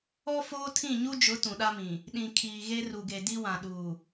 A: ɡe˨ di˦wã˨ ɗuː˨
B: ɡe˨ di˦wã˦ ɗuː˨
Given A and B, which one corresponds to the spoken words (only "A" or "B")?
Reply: A